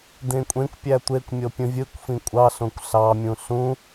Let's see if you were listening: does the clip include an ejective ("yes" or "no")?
yes